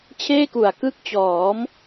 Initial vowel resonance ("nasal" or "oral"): oral